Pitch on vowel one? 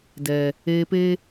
low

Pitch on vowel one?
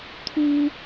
high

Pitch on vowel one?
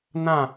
falling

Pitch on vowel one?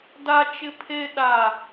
high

